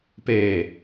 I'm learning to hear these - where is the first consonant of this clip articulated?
lips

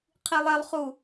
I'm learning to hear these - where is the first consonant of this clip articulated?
uvula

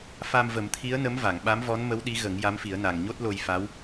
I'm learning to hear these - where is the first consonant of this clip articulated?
lips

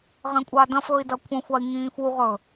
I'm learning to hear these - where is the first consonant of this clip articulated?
uvula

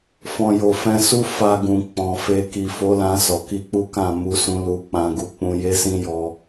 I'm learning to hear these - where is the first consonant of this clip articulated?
lips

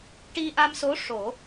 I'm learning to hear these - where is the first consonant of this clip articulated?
retroflex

